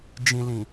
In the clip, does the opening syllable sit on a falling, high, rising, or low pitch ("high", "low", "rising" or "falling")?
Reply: low